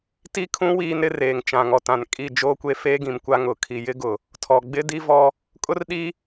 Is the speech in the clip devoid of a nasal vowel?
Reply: no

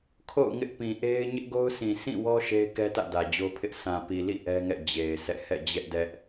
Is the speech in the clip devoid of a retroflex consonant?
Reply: yes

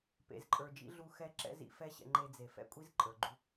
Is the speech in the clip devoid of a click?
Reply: no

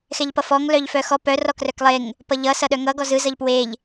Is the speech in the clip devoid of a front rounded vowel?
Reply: no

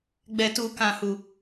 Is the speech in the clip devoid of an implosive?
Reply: yes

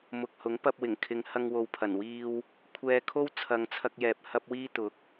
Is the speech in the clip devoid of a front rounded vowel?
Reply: yes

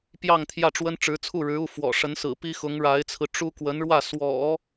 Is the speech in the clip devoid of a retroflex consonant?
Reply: no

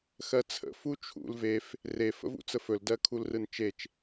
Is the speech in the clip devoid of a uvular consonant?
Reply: yes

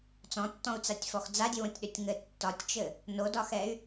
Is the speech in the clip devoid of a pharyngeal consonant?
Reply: yes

